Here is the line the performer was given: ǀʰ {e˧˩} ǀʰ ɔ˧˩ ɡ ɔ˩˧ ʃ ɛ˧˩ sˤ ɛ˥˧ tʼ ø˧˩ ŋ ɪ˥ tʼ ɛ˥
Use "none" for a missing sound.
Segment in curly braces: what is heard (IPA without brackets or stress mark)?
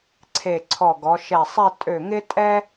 e˧˩